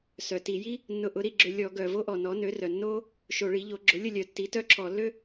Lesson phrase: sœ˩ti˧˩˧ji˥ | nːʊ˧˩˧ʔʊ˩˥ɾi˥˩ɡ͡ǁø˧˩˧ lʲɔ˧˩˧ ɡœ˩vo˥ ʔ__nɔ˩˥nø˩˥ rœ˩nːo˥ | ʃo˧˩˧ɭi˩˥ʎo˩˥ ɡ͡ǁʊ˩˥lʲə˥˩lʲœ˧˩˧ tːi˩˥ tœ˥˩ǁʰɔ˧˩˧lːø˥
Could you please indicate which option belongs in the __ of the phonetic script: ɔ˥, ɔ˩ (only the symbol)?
ɔ˩